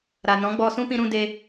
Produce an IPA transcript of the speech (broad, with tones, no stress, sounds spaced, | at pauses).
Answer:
ɾ a˨ n ɔ̃˨˦ ɡ͡b ɔ˧ s ũ˦ p ĩ˧ ɾ ũ˧ d e˧